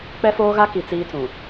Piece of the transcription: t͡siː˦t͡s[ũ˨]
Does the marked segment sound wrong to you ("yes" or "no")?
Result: no